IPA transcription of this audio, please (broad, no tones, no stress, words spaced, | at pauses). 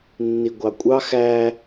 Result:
nːiɡʷɑkʷʼɑ xæ